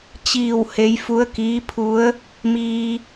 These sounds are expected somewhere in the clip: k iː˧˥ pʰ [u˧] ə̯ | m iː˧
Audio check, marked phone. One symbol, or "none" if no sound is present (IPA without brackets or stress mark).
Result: u˧˥